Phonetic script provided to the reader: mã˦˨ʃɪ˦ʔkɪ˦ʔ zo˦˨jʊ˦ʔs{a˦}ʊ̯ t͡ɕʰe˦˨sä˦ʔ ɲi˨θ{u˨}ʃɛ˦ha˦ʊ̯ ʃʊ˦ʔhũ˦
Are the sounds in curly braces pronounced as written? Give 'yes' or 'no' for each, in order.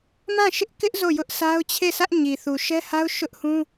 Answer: yes, yes

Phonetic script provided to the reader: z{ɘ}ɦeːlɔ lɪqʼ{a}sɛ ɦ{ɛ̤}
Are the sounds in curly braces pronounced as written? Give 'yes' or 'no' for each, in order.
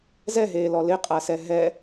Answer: no, yes, no

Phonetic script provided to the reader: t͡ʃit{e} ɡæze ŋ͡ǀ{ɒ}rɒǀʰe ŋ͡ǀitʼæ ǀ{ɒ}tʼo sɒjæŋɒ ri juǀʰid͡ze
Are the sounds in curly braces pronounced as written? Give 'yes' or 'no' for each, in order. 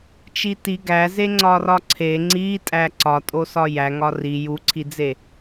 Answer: no, yes, yes

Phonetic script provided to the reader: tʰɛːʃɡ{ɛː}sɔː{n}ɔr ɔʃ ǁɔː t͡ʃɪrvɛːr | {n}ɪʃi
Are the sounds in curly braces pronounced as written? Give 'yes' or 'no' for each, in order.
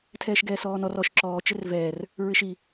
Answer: yes, yes, no

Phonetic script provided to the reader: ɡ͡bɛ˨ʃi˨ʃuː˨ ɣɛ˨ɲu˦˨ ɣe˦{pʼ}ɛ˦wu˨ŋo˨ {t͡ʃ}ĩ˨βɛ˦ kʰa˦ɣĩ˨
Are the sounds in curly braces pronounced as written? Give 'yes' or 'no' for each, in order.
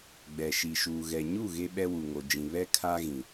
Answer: no, no

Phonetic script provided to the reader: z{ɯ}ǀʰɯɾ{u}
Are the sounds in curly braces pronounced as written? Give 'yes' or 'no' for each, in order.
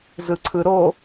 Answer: yes, no

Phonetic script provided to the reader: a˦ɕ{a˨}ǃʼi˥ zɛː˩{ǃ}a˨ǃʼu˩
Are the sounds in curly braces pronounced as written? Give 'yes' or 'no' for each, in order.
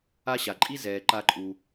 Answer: no, yes

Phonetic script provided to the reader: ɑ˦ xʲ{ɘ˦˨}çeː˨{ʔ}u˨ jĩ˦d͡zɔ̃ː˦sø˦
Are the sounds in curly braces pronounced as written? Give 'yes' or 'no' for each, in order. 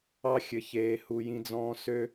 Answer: no, no

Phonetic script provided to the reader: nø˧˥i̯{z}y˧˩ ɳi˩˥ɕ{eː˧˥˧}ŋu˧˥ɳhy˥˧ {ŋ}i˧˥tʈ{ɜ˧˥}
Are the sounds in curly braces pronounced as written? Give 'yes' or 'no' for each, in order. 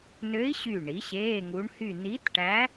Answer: no, yes, no, no

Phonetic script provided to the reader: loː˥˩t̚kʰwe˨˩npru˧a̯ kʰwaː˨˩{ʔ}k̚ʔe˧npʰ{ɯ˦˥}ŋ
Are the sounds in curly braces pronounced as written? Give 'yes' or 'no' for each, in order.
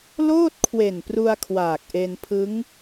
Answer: no, yes

